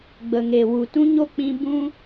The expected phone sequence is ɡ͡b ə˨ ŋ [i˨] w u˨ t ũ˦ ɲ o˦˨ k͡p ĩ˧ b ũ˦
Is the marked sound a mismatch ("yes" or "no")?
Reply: yes